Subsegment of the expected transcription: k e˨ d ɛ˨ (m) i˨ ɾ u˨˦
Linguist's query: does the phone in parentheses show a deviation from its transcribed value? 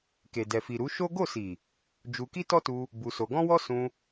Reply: yes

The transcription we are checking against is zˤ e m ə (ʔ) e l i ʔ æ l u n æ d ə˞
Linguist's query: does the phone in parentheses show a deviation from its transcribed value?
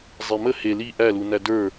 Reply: yes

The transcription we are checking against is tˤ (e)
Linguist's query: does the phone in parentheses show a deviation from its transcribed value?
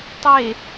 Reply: no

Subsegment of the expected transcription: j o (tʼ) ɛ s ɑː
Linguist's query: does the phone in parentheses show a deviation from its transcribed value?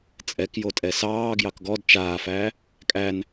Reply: no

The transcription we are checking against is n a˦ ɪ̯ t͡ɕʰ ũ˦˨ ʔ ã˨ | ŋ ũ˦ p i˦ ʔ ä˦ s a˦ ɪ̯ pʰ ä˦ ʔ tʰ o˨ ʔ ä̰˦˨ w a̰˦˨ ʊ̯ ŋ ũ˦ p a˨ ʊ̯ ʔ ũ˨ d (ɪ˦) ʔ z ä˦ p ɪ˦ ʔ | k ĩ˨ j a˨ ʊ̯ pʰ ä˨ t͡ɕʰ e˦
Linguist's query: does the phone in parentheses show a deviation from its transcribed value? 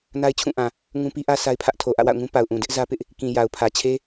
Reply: no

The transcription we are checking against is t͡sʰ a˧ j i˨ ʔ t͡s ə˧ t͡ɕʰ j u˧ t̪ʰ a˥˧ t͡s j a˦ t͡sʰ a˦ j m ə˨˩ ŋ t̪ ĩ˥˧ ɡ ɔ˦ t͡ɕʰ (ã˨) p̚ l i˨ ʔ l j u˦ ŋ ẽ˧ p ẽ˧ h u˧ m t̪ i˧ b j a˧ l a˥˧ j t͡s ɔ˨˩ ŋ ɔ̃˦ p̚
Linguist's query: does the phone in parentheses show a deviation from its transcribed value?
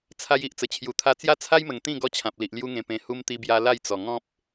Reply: no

